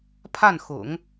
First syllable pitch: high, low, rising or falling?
falling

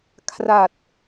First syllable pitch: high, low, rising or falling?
low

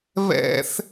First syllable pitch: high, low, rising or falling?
high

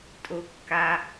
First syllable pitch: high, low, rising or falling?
low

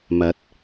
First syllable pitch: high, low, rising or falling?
rising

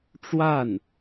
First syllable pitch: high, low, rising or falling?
falling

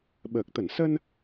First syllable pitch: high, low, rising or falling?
low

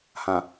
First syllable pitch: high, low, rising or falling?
low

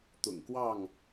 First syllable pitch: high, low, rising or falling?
low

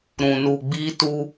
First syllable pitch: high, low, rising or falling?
low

